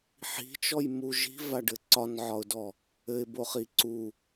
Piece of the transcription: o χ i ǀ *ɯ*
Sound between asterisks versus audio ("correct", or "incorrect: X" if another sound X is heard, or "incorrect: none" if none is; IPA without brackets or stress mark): incorrect: u